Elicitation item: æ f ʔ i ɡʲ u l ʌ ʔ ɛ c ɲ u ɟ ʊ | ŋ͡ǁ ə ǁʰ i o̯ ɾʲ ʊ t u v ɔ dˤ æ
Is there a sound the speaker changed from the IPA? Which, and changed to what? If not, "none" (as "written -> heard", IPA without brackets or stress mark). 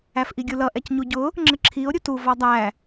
none